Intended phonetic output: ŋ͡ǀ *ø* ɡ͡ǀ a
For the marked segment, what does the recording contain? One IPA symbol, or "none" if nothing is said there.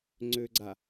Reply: ø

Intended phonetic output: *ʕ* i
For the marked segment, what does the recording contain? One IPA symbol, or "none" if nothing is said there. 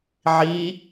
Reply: ʕ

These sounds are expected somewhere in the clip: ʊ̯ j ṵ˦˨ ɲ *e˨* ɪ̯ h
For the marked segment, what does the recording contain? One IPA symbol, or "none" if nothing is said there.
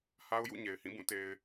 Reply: e˨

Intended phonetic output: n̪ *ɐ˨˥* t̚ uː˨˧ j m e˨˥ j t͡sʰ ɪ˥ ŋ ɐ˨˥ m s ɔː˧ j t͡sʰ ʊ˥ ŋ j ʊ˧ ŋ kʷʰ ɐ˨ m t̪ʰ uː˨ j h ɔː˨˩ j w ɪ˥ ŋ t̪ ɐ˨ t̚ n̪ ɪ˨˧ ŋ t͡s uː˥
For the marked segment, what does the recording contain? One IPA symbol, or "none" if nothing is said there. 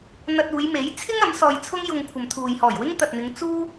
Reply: ɐ˧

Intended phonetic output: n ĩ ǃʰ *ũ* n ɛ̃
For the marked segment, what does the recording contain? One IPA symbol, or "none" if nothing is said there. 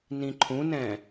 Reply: ũ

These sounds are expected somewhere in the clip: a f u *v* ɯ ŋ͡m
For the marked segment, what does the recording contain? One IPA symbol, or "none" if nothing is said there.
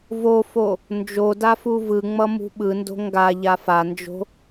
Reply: v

